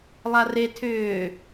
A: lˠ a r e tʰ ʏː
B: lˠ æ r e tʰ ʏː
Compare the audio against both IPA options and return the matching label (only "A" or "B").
A